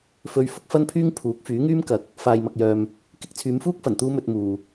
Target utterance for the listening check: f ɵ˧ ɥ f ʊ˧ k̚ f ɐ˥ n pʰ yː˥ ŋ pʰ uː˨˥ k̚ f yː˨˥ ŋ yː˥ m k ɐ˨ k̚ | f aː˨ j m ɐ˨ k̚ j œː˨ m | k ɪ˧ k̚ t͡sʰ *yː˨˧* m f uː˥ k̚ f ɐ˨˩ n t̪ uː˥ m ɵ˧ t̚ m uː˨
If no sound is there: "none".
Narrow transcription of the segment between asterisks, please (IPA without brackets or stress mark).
yː˨˧